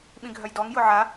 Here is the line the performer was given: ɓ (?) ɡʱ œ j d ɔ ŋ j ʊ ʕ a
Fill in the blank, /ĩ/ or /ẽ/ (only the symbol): ĩ